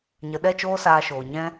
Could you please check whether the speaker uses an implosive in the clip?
yes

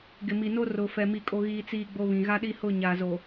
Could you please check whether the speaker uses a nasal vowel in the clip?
yes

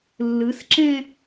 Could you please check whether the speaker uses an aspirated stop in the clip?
no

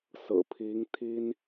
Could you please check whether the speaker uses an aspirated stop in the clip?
yes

